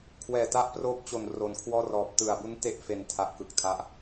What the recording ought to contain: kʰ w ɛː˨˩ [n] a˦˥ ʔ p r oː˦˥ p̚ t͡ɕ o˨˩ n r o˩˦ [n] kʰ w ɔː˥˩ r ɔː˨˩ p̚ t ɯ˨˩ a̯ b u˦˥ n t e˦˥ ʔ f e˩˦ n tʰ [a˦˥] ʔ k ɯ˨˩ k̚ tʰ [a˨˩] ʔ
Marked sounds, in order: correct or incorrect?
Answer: incorrect: t, correct, incorrect: a˨˩, incorrect: a˦˥

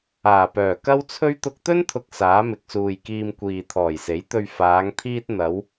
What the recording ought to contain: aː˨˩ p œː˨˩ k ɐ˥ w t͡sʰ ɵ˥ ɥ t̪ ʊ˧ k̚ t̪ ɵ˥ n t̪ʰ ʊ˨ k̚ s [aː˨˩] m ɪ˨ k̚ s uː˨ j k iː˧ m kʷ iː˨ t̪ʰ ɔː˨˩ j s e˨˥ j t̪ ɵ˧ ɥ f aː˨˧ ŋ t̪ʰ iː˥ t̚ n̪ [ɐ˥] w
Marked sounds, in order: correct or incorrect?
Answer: incorrect: aː˨˥, incorrect: ɐ˨˧

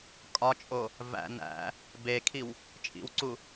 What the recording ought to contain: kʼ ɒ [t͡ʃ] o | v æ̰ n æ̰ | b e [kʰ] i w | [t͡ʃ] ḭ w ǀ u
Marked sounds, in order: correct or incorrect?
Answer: incorrect: t͡ʃʼ, correct, incorrect: t͡ʃʼ

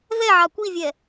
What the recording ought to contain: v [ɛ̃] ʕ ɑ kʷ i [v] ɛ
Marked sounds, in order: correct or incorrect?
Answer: incorrect: ɛ, incorrect: vʲ

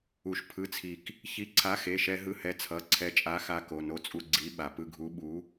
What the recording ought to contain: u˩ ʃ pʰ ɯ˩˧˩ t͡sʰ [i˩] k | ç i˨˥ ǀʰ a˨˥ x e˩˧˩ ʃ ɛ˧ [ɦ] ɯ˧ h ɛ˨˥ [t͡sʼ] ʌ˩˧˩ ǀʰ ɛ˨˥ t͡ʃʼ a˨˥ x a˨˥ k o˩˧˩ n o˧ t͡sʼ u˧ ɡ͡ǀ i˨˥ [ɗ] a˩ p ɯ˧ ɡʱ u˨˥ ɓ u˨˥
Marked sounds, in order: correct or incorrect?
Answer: correct, correct, incorrect: t͡sʰ, incorrect: ɓ

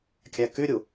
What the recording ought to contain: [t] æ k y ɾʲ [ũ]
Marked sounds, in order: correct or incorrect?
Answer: incorrect: kʲ, incorrect: u

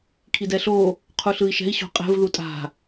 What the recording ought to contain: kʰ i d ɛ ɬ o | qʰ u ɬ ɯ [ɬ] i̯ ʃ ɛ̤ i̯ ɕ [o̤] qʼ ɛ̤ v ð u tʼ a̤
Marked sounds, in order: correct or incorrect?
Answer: incorrect: none, correct

